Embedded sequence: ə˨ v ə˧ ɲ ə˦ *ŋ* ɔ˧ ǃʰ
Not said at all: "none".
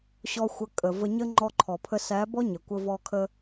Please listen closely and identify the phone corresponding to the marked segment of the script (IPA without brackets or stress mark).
ŋ͡ǃ